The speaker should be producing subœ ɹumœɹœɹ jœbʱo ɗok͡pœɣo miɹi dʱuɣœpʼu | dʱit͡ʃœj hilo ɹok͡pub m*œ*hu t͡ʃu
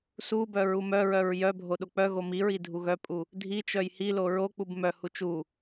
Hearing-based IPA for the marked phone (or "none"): œ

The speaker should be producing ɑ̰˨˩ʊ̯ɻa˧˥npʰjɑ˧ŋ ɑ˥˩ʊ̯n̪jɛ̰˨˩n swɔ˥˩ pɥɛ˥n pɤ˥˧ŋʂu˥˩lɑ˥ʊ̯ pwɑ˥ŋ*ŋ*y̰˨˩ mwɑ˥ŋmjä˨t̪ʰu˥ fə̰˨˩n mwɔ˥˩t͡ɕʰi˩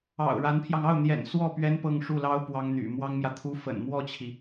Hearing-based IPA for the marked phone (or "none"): n̪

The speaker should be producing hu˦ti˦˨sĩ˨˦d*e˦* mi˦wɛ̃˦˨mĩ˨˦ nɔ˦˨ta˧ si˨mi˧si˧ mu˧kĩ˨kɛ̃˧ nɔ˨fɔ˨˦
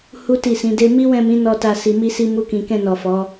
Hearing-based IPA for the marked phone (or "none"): e˦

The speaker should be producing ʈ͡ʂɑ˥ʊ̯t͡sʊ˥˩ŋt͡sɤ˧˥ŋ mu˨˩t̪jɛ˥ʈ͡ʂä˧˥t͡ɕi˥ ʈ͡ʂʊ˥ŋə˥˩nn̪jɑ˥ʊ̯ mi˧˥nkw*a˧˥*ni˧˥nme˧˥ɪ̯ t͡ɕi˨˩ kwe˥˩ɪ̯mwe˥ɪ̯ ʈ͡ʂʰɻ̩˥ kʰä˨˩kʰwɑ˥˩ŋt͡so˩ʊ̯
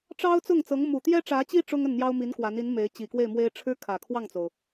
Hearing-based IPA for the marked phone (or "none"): a˧˥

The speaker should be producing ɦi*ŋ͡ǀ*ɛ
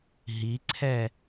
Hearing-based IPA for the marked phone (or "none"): ǀʰ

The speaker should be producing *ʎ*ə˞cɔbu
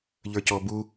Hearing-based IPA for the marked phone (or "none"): ʎ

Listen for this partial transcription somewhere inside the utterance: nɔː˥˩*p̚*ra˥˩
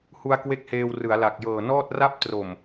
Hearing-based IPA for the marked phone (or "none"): t̚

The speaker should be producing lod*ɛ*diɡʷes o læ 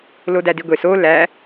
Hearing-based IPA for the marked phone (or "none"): æ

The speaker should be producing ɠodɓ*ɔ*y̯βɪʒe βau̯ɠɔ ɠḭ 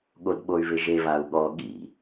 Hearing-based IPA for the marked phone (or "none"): o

